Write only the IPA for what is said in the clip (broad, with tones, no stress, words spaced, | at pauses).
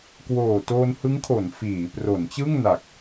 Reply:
kwoː˨˩ to˧nhɯ˦˥ŋkʰo˩˦n fiː˩˦ pro˩˦nt͡ɕɯ˥˩ŋna˨˩k̚